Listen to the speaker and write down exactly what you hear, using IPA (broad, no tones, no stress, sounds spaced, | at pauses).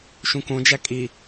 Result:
ʃ ũ k õ d͡ʒ æ kʼ i